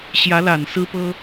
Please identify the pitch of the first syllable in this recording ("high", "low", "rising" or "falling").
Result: rising